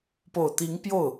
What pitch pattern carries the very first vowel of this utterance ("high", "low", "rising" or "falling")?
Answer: low